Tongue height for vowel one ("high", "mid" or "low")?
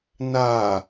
low